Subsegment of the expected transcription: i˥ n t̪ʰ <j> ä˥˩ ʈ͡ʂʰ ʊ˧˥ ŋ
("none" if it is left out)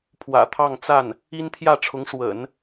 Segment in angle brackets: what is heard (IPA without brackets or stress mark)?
j